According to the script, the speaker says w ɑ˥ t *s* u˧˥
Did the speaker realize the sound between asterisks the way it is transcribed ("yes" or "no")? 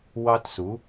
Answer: yes